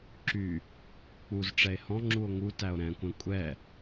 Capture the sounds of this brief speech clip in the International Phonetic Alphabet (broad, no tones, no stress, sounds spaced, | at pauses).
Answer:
ǁ y | k͡p u z ʈ͡ʂ ɛ e̯ h ɔ̃ ŋ͡ǁ u o̯ ŋ u t æ o̯ ɾ ɛ̃ kʷ ɛ̃ kʷʼ ɛ